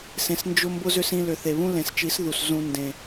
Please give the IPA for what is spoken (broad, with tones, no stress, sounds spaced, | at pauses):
s ẽ˧ s n d͡ʒ ʊ˦ m b ʊ˦ z ʏ˦ s ĩ˧ l ʏ˨ θ e˨ β ũ˦ l ẽ˨ s t͡ʃ i˨˦ s ð u˨ s z ũ˨ n d ẽ˨